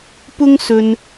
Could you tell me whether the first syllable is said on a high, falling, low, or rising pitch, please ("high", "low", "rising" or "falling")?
high